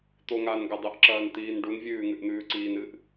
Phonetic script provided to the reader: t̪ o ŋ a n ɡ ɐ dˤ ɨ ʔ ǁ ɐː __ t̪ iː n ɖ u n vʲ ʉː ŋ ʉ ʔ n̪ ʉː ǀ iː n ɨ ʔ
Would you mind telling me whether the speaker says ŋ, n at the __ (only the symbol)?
n